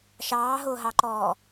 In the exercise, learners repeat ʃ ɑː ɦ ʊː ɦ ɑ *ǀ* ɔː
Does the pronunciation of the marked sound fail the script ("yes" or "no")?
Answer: yes